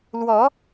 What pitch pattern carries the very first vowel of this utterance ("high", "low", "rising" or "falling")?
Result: rising